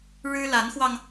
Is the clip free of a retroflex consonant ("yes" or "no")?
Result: no